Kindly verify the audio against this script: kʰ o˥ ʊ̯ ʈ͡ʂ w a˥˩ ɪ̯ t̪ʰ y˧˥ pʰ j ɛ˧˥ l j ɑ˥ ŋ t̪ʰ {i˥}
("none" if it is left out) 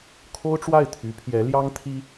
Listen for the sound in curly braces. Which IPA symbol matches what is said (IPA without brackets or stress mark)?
i˥